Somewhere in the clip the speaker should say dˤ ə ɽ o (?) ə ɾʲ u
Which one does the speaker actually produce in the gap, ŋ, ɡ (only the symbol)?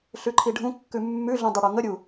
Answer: ŋ